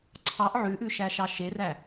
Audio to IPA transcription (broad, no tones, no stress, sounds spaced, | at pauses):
ǀʰ ɑ ʔ ʕ ʉ ʔ ʉ ʃ æ ʃ ɑ ʃ e r æ